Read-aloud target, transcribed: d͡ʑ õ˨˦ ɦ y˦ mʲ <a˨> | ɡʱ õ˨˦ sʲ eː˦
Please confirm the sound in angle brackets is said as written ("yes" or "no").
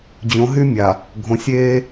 yes